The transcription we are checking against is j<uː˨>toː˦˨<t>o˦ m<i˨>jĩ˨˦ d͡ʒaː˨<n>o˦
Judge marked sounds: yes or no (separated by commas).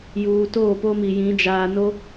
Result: yes, no, yes, yes